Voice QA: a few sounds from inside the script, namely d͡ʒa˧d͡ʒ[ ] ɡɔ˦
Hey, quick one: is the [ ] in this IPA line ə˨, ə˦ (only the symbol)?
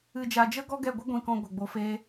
ə˦